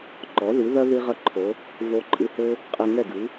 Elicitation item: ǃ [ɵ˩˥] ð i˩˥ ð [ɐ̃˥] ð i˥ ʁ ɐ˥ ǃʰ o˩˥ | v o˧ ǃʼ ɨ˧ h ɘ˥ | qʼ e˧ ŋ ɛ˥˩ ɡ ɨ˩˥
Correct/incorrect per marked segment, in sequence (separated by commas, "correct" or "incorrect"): incorrect, incorrect